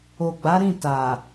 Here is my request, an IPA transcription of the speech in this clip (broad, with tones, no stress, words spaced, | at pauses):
o˨ɡ͡ba˨˦ɾĩ˦˨ ta˨